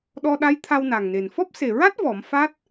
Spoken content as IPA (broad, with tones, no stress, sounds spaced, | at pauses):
ɗ ɔ˧ ɗ a˧˥ j t̪ʰ a˧ w n a˨˩ ŋ n e˨˩ n f ɔ˦˥ p̚ s e˨˩ ɹ a˦˥ t̚ v ɔ˨˩˦ m f a˦˥ t̚